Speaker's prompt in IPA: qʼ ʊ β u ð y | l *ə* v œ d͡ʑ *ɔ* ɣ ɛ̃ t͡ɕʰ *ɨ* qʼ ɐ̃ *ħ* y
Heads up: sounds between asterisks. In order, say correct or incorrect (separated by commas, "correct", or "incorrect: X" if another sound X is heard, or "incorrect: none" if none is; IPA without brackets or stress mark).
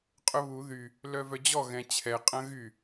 incorrect: œ, correct, incorrect: ɛ, incorrect: ɣ